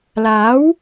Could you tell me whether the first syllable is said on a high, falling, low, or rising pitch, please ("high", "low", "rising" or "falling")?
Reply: rising